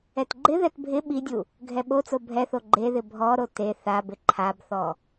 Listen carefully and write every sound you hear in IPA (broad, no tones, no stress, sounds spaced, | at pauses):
ɛ t ɡ͡ǃ ɪ ð ɛ t bʱ ɪ ɓ i dʲ u | ɡʱ ɛ ɓ o t͡s o bʱ ɛ θ o ɡ͡ǃ e ð ɪ bʱ ɔ ɾ o t e θ a b ɪ ǃʰ a b θ ɔ